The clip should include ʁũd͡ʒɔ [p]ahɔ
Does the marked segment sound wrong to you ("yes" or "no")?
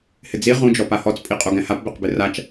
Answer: no